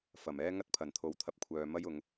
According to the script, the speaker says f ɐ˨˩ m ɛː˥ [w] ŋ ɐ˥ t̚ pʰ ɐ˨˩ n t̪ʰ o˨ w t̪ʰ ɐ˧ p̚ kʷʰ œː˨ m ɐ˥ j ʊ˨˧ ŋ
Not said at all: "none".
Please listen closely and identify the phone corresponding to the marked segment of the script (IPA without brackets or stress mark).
none